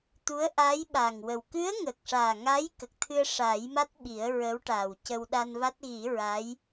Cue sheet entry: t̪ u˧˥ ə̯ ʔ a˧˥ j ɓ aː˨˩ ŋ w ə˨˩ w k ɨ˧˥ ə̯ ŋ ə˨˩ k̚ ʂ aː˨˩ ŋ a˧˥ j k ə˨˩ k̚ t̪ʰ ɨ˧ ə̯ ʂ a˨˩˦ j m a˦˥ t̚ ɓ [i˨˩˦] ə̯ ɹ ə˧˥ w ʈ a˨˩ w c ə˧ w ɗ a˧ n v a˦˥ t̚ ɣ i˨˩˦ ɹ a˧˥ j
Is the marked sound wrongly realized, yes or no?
no